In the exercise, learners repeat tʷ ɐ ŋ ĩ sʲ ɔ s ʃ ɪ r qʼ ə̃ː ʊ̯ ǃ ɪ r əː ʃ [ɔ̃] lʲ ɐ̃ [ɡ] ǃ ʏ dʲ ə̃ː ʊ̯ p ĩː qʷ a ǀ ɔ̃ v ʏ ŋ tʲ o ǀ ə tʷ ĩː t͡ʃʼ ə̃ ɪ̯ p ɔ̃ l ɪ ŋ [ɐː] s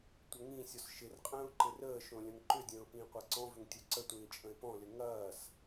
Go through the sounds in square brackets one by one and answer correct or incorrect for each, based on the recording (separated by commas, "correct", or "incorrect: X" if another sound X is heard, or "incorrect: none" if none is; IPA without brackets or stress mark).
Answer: incorrect: õ, incorrect: ŋ, correct